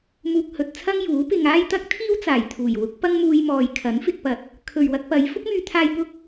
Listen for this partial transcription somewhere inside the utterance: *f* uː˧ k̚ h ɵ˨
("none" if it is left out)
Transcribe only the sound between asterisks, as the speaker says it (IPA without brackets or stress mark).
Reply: m